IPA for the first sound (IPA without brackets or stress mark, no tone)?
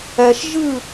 ɛ